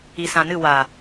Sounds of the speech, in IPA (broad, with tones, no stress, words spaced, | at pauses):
i˨sã˨nɨ˦˨ wa˨